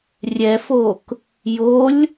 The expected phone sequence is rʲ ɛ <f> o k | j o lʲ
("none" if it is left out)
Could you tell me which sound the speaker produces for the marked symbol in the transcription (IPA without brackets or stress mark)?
f